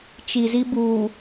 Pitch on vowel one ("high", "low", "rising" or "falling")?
low